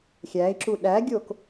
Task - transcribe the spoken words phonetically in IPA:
xʲæi̯ǁu ɗæɡʲok

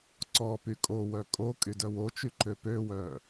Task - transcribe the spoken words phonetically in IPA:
ǀɔpy kʼowœ kʼo kʼydœwot͡ʃy ǃøpøwœ

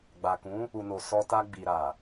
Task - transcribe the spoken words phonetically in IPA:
ɡ͡ba˨kũ˨˦ | u˨no˨ sɔ˧ta˧ ɡ͡bi˨ɾa˨

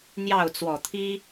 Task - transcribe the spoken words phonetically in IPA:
n̪jɑ˥˨ʊ̯t͡swɔ˨˩t̪ʰi˦

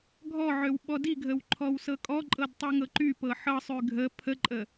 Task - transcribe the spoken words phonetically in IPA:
ɡʱɔʕøw ɓɔdiɡʱəw ǃʰɔwsɤkʼɔǃʼɤd tˤyŋɤǃypɤ ħɤsˤy ɡʱə pʰəǃʼə

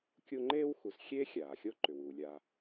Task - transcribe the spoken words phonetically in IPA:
kʲu˦ŋ͡ǃeː˥wxu˨sxʲeː˥ xʲaː˩xʲo˥ ǃʏ˩wuː˩lʲa˨

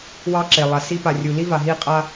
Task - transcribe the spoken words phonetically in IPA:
wɑ˦ǁe˨lˠa˨si˦ pa˨rʲu˨ li˦va˨ɦi˦˨qʼa˦

